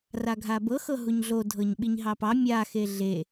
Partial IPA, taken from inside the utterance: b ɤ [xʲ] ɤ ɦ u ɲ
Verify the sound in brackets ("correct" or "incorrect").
incorrect